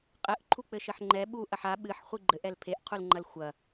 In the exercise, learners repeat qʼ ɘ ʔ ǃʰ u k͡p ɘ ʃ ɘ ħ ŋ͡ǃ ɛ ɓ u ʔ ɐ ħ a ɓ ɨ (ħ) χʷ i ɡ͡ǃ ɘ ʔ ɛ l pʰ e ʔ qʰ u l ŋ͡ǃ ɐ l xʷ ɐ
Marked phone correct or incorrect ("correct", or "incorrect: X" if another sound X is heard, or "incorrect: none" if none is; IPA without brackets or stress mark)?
correct